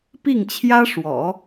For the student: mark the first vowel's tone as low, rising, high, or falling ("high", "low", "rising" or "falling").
falling